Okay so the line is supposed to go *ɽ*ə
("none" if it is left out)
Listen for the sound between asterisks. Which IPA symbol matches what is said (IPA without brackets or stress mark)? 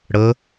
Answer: ɽ